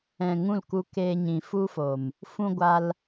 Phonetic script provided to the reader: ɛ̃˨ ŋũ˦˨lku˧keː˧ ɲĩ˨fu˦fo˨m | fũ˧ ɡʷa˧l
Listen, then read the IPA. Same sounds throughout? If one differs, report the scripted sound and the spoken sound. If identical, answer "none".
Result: none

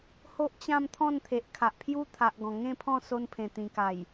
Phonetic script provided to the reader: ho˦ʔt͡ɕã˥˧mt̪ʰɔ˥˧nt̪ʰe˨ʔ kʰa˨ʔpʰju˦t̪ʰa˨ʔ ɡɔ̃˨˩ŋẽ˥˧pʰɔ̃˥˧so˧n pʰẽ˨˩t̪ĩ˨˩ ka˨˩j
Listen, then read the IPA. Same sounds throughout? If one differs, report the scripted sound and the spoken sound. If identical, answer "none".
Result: ɔ˥˧ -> ɔ̃˥˧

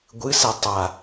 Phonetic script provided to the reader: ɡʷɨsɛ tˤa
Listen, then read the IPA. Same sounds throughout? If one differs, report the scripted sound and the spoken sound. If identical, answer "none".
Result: none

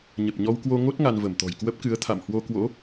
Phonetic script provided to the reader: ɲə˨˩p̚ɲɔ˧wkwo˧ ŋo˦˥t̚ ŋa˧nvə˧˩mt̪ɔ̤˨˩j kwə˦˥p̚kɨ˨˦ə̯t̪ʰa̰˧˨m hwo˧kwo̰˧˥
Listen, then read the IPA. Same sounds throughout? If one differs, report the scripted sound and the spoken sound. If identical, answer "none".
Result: none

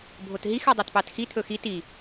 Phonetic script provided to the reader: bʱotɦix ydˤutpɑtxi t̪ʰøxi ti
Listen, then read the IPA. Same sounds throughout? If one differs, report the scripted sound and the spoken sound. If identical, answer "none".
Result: ø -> ɵ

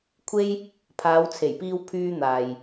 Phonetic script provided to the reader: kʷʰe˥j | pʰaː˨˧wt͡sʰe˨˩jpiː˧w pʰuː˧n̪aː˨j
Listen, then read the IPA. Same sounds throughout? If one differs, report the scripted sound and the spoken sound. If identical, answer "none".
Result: uː˧ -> yː˧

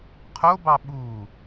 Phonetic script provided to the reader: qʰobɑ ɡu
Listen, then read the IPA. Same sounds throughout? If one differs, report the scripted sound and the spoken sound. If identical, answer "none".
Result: ɡ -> ɓ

